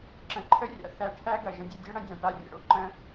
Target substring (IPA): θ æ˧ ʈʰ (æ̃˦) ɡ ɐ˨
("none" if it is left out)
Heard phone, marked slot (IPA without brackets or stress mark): æ˦